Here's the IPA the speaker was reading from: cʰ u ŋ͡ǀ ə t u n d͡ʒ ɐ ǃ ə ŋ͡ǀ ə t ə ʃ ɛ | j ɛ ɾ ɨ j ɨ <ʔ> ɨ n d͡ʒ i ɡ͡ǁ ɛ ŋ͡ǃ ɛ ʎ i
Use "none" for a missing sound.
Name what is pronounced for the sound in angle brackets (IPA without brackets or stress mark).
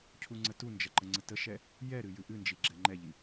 ʔ